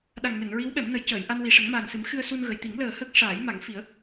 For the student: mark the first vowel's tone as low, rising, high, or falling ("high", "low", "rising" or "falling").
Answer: low